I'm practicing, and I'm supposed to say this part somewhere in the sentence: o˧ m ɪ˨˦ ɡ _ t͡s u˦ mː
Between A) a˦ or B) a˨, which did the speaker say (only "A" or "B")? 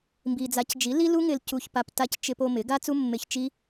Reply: A